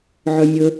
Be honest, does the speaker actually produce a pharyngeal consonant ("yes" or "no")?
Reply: yes